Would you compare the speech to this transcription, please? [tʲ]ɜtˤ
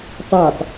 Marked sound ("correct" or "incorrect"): incorrect